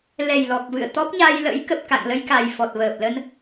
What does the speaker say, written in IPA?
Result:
l ɛ˨˩ j l ɔ˨˩ k̚ v ɨ̰˧˨ ə̯ t̪ ɔ˦˥ p̚ ɲ a˧ j l ə̰˧˥ j k ə˨˩ p̚ k a̰˧˨ ŋ l ə˧ j k a˨˩ j f ɔ˨˩ t̚ v əː˨˩ p̚ l ə˧ n

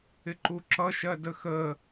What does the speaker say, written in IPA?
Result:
ɪ ǃ u ǁ ʌ ʃ ɜ d ə x ə

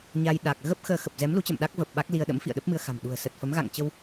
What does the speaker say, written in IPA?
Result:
ɲ a˧ j ɗ a˨˩ k̚ ɣ ə˦˥ p̚ x əː˧ x ə˨˩ p̚ z ɛ˨˦ m l u˨˦ t͡ɕ ə̰˧˨ m ɗ a˦˥ k̚ v ə˨˩ p̚ ɓ a˦˥ k̚ l i˧ ə̯ ɗ ə̰˧˥ m f ḭ˧˨ ə̯ ɗ ə˦˥ p̚ m ɨ˧ ə̯ x a̤˨˩ m ɗ ṳ˨˩ ə̯ s ə˨˩ t̚ f ə˨˦ m ɣ a̰˧˨ ŋ t͡ɕ ə˧ w

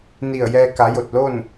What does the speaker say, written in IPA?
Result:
n i˧˩ ə̯ j ɛː˧ k a˩˧ j o˧˩ t̚ l oː˥˨ n

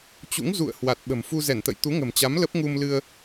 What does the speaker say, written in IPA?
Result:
t͡ɕ ṵ˧˥ ŋ z ṵ˧˨ ə̯ h w a˨˩ t̚ ɓ ə̤˨˩ m f u˧ z ɛ˧˩ n t̪ ə̰˧˨ j t̪ u˨˦ ŋ ə̤˨˩ m t͡ɕ a˨˦ m l ə˦˥ p̚ ŋ u˧ m l ɨ˧ ə̯

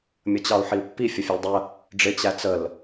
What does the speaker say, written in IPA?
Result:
mʲ ə t͡ɕ ɑ u̯ ħ i u̯ pː i fʲ ə fʲ ɑ l dˤ ə | ɖ͡ʐ ɪ t͡ɕ æ t͡s ə l

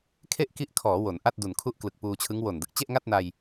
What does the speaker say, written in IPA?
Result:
kʰ e˥˩ ʔ k i˦˥ ʔ kʰ ɔː˩˦ w o˩˦ n ʔ a˥˩ t̚ d u˨˩ n kʰ u˥˩ ʔ k l ɯ˨˩ k̚ p uː˧ t͡ɕʰ ɯ˦˥ ŋ w o˨˩ n d ɯ˨˩ k̚ t͡ɕ e˥˩ ʔ ŋ a˥˩ t̚ n a˧ j

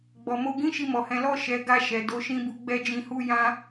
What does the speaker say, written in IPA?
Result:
ɡ͡b ɔ˨ m o˧ ɡ ĩ˦ ʃ i˧ m ɔ˨ h ɛ̃˨˦ l ɔ˦˨ ʃ ɛ˨˦ ɡ a˧ ʃ ɛ˨ d o˧ ʃ ĩ˦ b u˧ ɡ͡b ɛ˦ d͡ʒ ĩ˧ h u˦ j ã˦

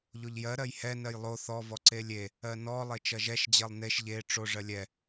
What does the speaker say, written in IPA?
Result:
ʎ o ʎ j ɜ ɾ ɜ j h ɛ n ɜ j lˠ o θ ɔ v ɔ ǀ e lʲ e | ɜ n ɔ lˠ e t͡ʃ ɜ ʒ ɛ ʃ d͡ʑ ɜ lˠ n e ʃ ʎ e ʈ͡ʂ o ʐ ɜ lʲ ɛ

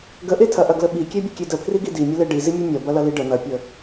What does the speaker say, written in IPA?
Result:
ɡ ə ʔ e tʰ ɐ ʔ ɐ ɡ l ə ɓ i kʲ e bʲ ə kʲ e d ə pʰ r i ɡ i d i mʲ ə l e ɖ i z i mʲ e mʲ ɐ b ɐ l ɐ l i ɖ ə n̪ ɐ pʲ ə

